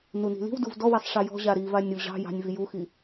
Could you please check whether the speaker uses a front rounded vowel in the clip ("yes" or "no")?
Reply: no